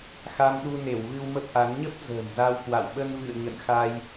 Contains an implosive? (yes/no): yes